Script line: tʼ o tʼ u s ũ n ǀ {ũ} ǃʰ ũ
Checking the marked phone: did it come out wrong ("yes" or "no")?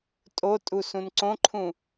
yes